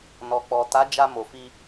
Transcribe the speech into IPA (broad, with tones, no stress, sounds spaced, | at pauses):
n ɔ˨ k͡p ɔ˨ t a˨˦ d͡ʒ a˧ m o˨ f i˧